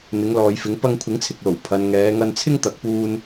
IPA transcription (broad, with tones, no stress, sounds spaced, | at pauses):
n̪ ɪ˨˧ ŋ l ɔː˨ j f ɪ˨˧ ŋ p ɐ˧ ŋ kʷʰ ɪ˨˥ ŋ t͡sʰ ɪ˨ k̚ l o˨˩ w pʰ ɐ˨ n ŋ ɛː˨˧ ŋ ɐ˧ n t͡sʰ ɪ˥ ŋ t̪ ɐ˨ k̚ p uː˧ n